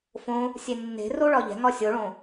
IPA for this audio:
f õ | sʲ e nː e̤ r o ɭ ɒ ʎ ɛ̤ ŋ ɒ sʲ o ɭ õ

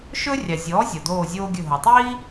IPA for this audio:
ʃ ɵ˥ rʲ ɑ˩ zʲ ɔː˩˥ zʲ ɔ˩ d oː˦˨ zʲ oː˥ ɡʲ ɵ˦˨ ɦ o˩ tˤ iː˥

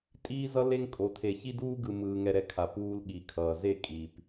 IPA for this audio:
tʼ iː˦ z ʌ˦ l e˦ ŋ kʼ o˨ tʰ e˨ ç i˦ d uː˦ ɡ ɯ˨ m ɯː˨ ŋ ɛ˦ ɾ ɛ˦ kʰ a˨ p uː˦ l ɠ i˨ kʰ ʌː˨ z e˦˨ kʼ i˨ p

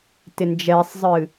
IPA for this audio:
t ɪ n d͡ʒ ɛ sˤ zˤ ɨ

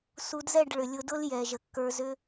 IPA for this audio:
s u˧ d z ɛ˦˨ ɖ ɭ ʏ˨ lʲ ʊ˧ d ʊ˦ l j ɛ˨ ʒ ə˨ kː ə˞˧ z ʏ˦

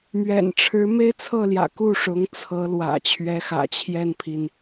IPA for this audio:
m ɥ ɛ̰˨˩ n ʈ͡ʂʰ ɻ̩˧˥ m e˥ ɪ̯ t͡sʰ ɤ˥˩ l j ä̰˨˩ k u˥˩ ʂ ʊ˧˥ ŋ t͡sʰ ɤ˧˥ l w ä̰˨˩ t͡ɕʰ ɥ ɛ˧˥ x ä̰˨˩ t͡ɕʰ j ɛ˥˩ n pʰ i˩ n

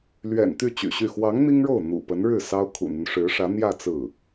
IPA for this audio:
l ɥ ɛ̰˨˩ n t̪ y˥˩ t͡ɕ y̰˨˩ ɕ y˥˩ x w ɑ˧˥ ŋ n̪ i˥ ŋ ɻ o˥˩ ʊ̯ n̪ ṵ˨˩ p ə˧˥ n ɻ ɻ̩˥˩ s ɑ˥ ʊ̯ kʰ ṵ˨˩ n̪ y˦ n ʂ ɻ̩˧˥ ʂ ä˧˥ n̪ j ä˥˧ t͡s ɹ̩˥˩

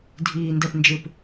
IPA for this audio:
dʱ iː n d ɛ p n d͡ʒ ɨ p

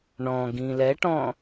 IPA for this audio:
ɳ ɔ̃ ɡ ĩ l ɛ ʈ ɔ̃

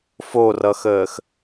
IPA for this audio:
f o r ʌ x əː x

